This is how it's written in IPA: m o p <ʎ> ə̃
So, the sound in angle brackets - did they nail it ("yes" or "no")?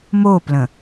no